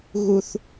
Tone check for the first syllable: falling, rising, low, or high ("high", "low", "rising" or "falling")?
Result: low